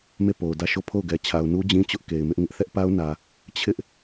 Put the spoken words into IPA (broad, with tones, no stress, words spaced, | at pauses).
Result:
me˦˨po˨ʊ̯dä˦˨ ʃo˦˨pʰo˦˨ʊ̯ɡɛ˨ t͡ɕʰa˨ʊ̯nu˦d͡ʑĩ˦ t͡ɕʊ˦ʔke˨ɪ̯mɪ˦ʔŋɪ˦ʔ θɛ˦ʔpa˦ʊ̯nä˨ | t͡ɕʰɪ˦ʔ